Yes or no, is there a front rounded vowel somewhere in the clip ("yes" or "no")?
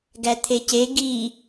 no